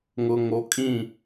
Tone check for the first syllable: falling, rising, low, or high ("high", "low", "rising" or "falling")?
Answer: low